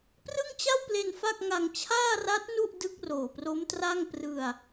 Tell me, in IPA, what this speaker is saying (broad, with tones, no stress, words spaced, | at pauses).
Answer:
prɯ˥˩ŋt͡ɕa˥˩wple˧n fa˥˩k̚ŋa˧ŋ t͡ɕʰaː˥˩ra˦˥t̚ nu˥˩ʔ dɯ˦˥k̚roː˨˩pro˦˥mtra˥˩ŋ prɯ˧a̯